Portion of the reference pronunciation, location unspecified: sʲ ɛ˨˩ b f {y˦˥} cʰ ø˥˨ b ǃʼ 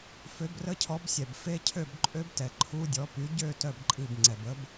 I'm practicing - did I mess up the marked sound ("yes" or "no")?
yes